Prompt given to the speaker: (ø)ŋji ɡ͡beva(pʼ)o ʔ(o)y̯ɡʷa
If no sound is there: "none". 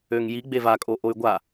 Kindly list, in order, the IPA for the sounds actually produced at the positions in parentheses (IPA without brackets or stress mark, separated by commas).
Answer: ø, kʼ, o